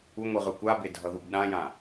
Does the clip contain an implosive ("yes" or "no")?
yes